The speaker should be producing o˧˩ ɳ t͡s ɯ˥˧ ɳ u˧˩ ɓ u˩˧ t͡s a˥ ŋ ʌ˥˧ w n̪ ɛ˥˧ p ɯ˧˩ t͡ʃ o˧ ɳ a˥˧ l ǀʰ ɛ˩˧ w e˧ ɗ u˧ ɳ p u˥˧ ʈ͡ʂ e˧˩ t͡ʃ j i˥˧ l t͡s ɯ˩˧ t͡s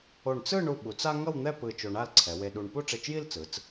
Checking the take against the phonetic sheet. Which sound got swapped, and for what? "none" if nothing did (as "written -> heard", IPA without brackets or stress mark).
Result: none